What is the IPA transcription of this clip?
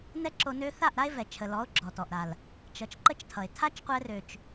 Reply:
n ɛ˦ ǁ o˧ n ø˧ θ a˦˨ ʔ ɾ a˦ e̯ v ɛ˨ t͡ʃʰ ə˨ l ɔ˨˦ o̯ ɡ͡ǁ ɔ˨ t ɔ˨ ʔ ɾ a˨ l | t͡ʃ ʌ˨ t͡ʃ ǃ ə˦ t͡ʃ tʰ ʌ˨ e̯ tʰ a˦ t͡ʃ qʷ ɛ˧ r ø˨ t͡ʃ

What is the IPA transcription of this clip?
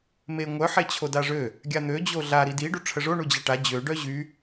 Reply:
m e ŋʷ œ ħ e t͡ɕʰ o d a ʐ ø | ɡʲ a n̪ ø d͡ʑ o ɮ a ɾ i d i ɖ u ʈ͡ʂʰ ə ʐ o ɳ u d͡ʑ a ʈ a d͡ʑ ø ɖ œ ʑ y

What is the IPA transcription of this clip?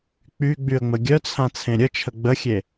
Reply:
k͡p y ɡ͡b y ə̯ ŋ͡m ə ɡʲ œ t͡sʰ ã t͡sʰ ẽ ɾʲ ə t͡ʃʰ ə ɡ͡b ə xʲ e

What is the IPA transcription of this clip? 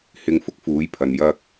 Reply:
h ɪ˧ ŋ f ʊ˥ k̚ f uː˨˥ j pʰ ɐ˨ n j ɐ˧ k̚

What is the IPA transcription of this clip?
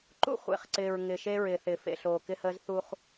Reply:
ǃ ṵ˦ χʷ ḛ˨ χ ǀ ɪː˨ ɹ ŋ ɪː˨ ʃ e˦ ɹ ɪː˨ θ ɪ˨ f ḛ˨ ɬ oː˨ k ɪ˦ h əː˦ z θ u˦ χ

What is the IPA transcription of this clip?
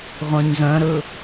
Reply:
ʁʷ œ̃ ɲ z œ̃ ɾ ɵ

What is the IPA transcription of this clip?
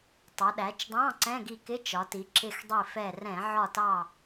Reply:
tˤ ʌ˩˧ ɗ æ˩˧ t͡ʃ dˤ ɑ̃˧˥˧ ǀ ɛ̃˧˥˧ ɡ i˧˩ k ɪ˧˥˧ t͡ʃ ɒ˩˧ t i˩˧ ǁ ɪ˧˩ x dˤ i˧˩ f ɛ˧˩ r ɛ̃˧˩˧ ʕ ɒ˧˩ t ɑ˧˩

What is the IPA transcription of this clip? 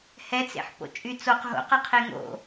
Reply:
h ɛ t͡s ḛ ħ p o̰ t͡ʃʼ y t͡s o q ɦ o̰ q ʌ qʰ e ŋ o̰

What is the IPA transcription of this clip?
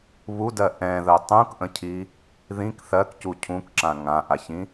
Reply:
β u d ɜ ʔ ɛ̃ ð ɜ tˤ ũ k ʔ ə̃ cʰ i | ð ĩ k θ ɜ k c u cʰ ũ k ǁ ã ŋ ã ʔ a ç ĩ

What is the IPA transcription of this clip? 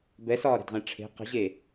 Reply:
b ɛ s ɒː ɾ ɛ̤ d ʁ ɛ̃ ʈ͡ʂʰ e̤ q ə̤ ʑ e

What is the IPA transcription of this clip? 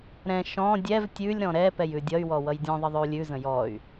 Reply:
ɾ ɛ̃ ʃ ɔ̃ dʲ ɛ v tʲ ʉ lʲ ɾ ɔ̃ ɾ ɛ p ɛ j ʉ dʲ ʌ y̯ w ɔ w ʌ j dʲ ɔ̃ ðˤ ə ðˤ ʉ u̯ lʲ ʉ z ə̃ j ɔ y̯

